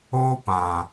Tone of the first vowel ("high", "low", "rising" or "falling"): high